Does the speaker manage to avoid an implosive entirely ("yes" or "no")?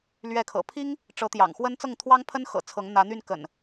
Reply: yes